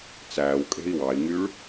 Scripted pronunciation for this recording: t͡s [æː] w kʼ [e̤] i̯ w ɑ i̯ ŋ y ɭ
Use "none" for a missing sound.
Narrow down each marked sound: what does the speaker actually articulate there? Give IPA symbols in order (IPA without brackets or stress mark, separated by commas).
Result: æː, e̤